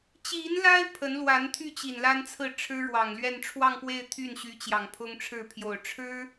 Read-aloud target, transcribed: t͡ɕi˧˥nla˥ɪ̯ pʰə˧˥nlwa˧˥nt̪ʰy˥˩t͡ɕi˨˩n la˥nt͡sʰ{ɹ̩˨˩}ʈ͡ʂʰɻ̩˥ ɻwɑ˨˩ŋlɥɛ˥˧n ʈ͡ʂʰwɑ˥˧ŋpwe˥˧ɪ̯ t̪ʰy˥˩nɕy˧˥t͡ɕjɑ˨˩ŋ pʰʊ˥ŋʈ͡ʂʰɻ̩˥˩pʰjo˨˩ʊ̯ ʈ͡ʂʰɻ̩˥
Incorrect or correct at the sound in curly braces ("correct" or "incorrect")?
incorrect